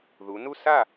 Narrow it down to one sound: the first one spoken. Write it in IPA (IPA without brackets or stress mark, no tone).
ð